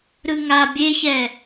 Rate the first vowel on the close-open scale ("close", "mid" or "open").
close